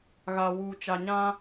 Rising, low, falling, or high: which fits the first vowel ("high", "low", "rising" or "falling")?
low